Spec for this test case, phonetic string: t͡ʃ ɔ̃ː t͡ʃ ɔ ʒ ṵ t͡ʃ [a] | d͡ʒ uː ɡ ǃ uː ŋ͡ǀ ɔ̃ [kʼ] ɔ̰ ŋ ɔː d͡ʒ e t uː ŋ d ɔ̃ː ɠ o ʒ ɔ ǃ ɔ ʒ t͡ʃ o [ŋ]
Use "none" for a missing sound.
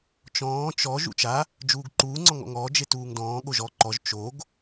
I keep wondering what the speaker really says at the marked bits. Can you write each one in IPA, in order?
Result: a, ŋ, ɡ

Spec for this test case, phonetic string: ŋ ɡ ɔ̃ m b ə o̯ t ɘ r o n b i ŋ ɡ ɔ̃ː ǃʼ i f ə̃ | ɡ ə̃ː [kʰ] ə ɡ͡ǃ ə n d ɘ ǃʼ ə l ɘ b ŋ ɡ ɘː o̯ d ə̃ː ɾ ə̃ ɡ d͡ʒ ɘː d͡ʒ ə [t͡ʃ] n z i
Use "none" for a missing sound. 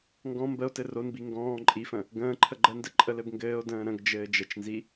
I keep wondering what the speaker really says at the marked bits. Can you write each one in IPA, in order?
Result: ǃʰ, t͡ʃ

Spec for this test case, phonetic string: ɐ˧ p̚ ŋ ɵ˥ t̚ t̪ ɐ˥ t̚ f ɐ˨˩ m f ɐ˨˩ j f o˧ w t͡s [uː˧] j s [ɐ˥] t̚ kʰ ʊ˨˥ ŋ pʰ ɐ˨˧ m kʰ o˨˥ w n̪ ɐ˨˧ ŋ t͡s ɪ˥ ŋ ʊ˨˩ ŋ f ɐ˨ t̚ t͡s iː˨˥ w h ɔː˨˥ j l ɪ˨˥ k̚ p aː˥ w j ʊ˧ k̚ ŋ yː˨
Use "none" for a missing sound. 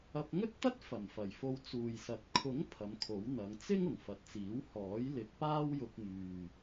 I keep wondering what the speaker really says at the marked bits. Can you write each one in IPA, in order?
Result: uː˨, ɐ˨˥

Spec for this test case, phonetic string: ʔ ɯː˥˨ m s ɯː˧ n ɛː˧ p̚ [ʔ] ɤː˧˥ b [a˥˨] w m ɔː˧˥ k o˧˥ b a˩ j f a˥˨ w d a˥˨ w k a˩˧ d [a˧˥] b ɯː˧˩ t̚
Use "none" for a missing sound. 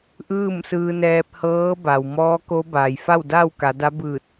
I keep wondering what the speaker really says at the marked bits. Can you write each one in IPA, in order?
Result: h, a˩, a˧˥

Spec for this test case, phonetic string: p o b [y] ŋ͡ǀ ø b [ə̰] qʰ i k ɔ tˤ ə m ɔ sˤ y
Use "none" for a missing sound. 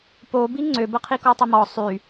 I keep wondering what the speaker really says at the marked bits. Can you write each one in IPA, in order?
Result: i, ə

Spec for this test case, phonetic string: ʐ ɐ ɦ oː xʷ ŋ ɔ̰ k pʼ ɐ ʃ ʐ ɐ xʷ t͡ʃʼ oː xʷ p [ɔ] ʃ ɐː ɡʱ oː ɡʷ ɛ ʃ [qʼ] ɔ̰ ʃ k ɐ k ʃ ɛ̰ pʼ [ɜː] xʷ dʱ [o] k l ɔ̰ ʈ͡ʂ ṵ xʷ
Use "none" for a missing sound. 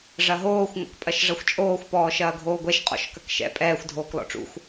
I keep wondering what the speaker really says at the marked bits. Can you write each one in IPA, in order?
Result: ɔː, qʼ, ɛː, oː

